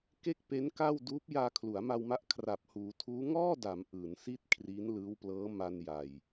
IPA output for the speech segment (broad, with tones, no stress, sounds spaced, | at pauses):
k e˥˩ k̚ p e˦˥ n k a˥˩ w d uː˦˥ p̚ j aː˧ kʰ l u˩˦ a̯ m a˧ w m a˦˥ ʔ kʰ r a˨˩ p̚ h uː˩˦ tʰ uː˦˥ ŋ ɔː˥˩ d a˩˦ m ʔ ɯː˩˦ n s i˥˩ t̚ kʰ r i˦˥ n l ɯː˦˥ w p l ɤː˦˥ m a˧ n j a˨˩ j